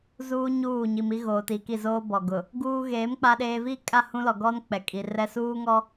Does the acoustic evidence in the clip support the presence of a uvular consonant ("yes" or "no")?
no